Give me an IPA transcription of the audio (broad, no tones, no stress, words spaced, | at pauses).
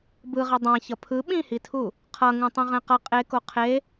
bɯʁɛ dˤã çʌpʰɯ ɓĩhitʰu | qʰʌ ŋũtˤũʁɛ̃qʌ qʼeko qʰe